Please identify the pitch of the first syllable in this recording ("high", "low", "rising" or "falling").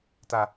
low